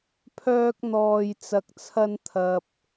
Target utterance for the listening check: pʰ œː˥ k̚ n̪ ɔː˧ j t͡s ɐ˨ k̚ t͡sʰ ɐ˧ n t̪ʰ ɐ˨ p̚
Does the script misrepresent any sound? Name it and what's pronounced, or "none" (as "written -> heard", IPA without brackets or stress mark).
none